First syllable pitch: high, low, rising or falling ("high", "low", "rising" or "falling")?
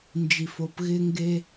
low